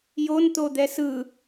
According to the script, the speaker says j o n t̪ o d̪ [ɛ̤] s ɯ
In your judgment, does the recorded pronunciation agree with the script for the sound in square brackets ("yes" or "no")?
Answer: no